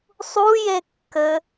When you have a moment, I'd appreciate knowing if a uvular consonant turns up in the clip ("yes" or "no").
no